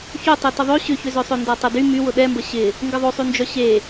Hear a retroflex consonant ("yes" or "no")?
no